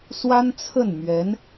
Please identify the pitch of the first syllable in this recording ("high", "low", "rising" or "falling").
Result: high